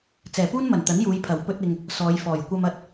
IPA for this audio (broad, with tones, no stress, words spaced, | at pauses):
t͡sɛː˨˩puː˥nmɐ˨˩n t̪ɐ˨˥njuː˨˧jpʰɐ˨˩w pɵ˧t̚ɪ˨ŋ | sɔː˨˧jfɔː˨˩j kʷɐ˧mɐ˧t̚